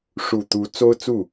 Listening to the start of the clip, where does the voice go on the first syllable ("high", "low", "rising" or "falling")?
low